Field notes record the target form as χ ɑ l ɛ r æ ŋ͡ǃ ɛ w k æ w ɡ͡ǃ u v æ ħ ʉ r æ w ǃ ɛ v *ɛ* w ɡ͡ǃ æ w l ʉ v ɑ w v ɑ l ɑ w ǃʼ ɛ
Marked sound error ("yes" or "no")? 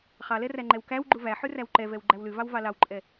no